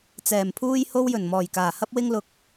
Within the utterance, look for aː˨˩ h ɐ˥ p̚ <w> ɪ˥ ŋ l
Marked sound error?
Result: no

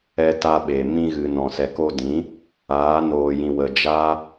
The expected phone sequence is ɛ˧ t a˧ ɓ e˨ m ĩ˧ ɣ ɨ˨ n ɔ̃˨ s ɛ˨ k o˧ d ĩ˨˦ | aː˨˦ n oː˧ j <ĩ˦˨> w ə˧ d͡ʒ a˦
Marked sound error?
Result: yes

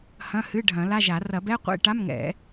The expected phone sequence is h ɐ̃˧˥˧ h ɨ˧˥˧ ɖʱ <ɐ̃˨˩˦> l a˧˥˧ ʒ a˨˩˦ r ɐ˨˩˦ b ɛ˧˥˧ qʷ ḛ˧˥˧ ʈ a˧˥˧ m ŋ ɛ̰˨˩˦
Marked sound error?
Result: no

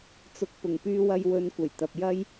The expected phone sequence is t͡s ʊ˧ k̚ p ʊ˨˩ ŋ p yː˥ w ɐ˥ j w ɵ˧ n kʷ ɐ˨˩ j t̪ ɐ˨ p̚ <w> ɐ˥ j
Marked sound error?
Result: yes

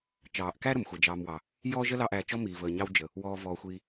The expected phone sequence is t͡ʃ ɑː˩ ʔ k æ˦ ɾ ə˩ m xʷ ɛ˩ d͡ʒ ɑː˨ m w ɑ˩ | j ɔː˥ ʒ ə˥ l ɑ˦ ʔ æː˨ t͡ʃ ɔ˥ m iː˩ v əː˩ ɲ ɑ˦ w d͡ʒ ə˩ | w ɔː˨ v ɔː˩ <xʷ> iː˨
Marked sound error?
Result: no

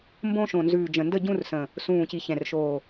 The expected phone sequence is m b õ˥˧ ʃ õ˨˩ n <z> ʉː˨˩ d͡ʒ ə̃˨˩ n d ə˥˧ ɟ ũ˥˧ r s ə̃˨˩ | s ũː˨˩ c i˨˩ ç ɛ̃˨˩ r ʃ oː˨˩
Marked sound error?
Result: no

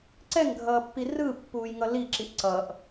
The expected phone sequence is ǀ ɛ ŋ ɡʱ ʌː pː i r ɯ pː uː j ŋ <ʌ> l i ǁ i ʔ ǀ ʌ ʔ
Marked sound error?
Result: no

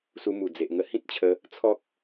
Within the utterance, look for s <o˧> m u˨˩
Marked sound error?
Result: yes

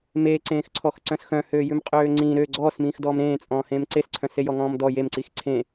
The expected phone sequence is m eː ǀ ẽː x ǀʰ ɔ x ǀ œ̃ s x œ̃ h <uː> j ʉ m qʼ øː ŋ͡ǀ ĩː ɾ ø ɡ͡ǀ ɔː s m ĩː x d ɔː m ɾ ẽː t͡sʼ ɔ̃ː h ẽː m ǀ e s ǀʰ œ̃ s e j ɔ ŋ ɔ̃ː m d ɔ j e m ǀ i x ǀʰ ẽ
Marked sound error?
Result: yes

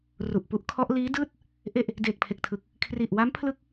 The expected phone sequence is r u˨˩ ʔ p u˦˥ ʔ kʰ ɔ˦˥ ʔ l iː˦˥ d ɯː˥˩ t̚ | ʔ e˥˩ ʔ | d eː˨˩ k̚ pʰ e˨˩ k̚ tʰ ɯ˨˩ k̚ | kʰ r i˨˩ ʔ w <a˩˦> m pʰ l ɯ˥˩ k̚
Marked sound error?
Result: yes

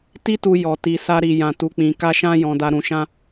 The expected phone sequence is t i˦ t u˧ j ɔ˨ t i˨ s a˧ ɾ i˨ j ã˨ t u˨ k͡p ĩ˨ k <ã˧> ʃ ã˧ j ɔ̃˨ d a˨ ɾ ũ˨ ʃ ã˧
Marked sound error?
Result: yes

